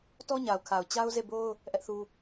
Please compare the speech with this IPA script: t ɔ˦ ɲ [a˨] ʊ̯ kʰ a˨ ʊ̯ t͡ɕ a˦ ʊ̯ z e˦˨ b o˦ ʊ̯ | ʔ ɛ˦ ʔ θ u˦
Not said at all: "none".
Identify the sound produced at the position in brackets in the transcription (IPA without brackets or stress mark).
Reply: a˨